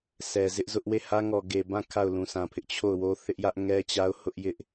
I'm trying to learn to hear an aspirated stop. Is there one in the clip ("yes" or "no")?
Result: yes